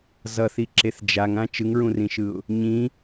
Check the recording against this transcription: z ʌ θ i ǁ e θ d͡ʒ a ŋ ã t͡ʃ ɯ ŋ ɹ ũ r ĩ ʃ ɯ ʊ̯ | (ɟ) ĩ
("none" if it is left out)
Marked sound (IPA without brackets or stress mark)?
ɲ